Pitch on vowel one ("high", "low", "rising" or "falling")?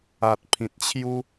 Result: low